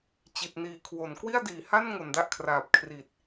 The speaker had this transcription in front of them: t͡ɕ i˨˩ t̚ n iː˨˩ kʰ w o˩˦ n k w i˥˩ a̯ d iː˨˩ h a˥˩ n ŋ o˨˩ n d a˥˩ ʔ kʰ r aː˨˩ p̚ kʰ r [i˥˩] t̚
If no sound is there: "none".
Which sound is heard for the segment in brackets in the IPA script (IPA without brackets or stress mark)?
i˨˩